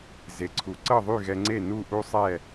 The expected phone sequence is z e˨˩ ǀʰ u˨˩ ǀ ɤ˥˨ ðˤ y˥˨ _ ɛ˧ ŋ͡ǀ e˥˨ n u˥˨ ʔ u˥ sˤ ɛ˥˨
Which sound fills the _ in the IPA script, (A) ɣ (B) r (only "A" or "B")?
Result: A